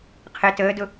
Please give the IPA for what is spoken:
qʰ ɪ t əː d ʊ

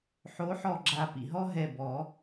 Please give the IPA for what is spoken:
ħ o˨˥ ħ ɔ˧˩ ɡ͡ǁ a˨˩˦ p ḭ˩ ɦ ɔ˦ ɦ ɛ˧˩ b ɔ˨˩˦

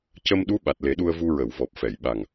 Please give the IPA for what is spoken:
c ə˧ m ɗ u˧˥ ɓ a˨˩ t̚ l e˨˩˦ ɗ u˧ ə̯ v u˧ ɹ ə˨˩˨ w v ɔ˨˩ p̚ f ɛ˨˩˨ j ɓ a˨˩ ŋ

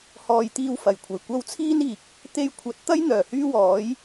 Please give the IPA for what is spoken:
h ɔː˨ j t̪ iː˧ w f ɐ˨˩ j kʷʰ ɐ˨˩ j kʷ ɐ˧ w t͡sʰ iː˥ n iː˨ k̚ | t̪ e˧ j kʷʰ ɐ˨˥ t̚ t̪ ɐ˥ j n̪ œː˨˩ h yː˥ w ɔː˨˥ j

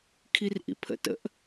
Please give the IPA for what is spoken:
kʰ i r ʔ ḭ pʰ ə̰ t ə̰ ʔ

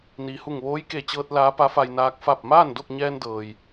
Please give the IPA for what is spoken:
n iː˩ h u˧˩ ŋ ʋ oː˧˥ j k e˧˩ t͡ɕ ɤː˧ t̚ l aː˧˥ p a˧˥ f a˧ j n aː˧˥ k̚ f a˥˨ p̚ m aː˥˨ n d o˥˨ k̚ ɲ ɛː˧ n d ɤː˩ j

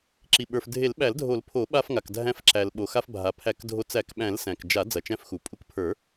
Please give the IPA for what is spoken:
ǁ i˩ ɓ ə˞˩ f dʱ e˨˩˦ l ɓ æ˨˩˦ l dʱ o˨˩˦ l pʰ o˨˩˦ ɓ a˧ f ŋ a˩ k dʱ æ̃˧ f ǁ æ˩ l ɓ o˩ x a˧ f bʱ a˩ pʰ æ˨˩˦ k dʱ o˧ t͡s æ˨˩˦ k ɓ æ̃˨˩˦ l s æ̃˩ k d͡ʒ a˨˩˦ d͡z ɐ˩ t͡ʃ æ̃˧ f x u˩ pʼ u˧ k pʰ ə˞˨˩˦

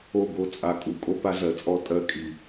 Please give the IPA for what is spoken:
o˦˨ ɡ o˦ t͡sʼ a˧ kʼ u˨ kʼ o˦ p a˦ ɮ ɜ˨ t͡sʼ ɔ˦ tʼ ɜ˧ kʼ i˨

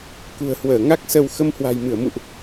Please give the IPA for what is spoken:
k ṳ˨˩ ə̯ h w əː˧˩ ŋ a˦˥ k̚ s ə˧ w x ə˧ m h w a̤˨˩ j m ɨ˧˩ ə̯ m ṵ˧˨ ʔ

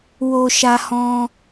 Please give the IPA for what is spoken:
w o˧ ʃ a˧ h ɔ̃˧

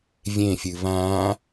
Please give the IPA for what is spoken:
vʲ ẽ fʲ ɨ β ãː

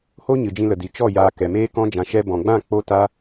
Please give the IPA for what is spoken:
h o˦ ɲ ɨ˨ d͡ʒ ĩ˧ l ə˨ d i˨ t͡ʃ ɔ˦˨ j aː˧ k ɛ˨ m eː˦ k ɔ̃˦ d͡ʒ ã˧ ʃ ɛ˦ b ɔ̃˨ ɡ͡b ã˦˨ k͡p o˦ t a˦

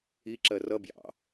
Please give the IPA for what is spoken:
i ǁ ɜ r ʌ b j ɑ̰

